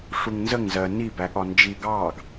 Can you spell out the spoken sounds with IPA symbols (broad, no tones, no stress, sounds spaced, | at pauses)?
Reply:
ʂ u ŋ n z ə ŋ z ɜ n i b æ ɠ ɒ n d͡ʒ i ɡ ɑː ɡ